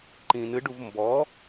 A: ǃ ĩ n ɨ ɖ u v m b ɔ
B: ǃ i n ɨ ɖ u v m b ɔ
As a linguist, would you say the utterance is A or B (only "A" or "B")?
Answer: A